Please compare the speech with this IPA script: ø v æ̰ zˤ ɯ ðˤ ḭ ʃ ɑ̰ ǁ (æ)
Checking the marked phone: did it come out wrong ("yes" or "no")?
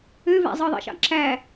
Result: no